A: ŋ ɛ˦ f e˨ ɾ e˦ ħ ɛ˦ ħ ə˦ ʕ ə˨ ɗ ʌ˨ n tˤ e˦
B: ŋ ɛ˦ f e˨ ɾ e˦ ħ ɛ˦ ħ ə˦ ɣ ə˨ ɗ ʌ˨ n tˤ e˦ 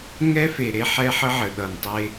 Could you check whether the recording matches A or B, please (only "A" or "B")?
A